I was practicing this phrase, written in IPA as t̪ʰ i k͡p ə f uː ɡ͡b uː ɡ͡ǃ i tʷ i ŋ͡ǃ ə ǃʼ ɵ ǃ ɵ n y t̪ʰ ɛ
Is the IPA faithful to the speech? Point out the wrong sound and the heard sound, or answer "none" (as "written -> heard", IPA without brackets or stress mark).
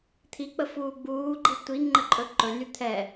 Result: none